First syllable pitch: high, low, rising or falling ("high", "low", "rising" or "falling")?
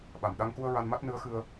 low